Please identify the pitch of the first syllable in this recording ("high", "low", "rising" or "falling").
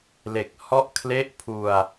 low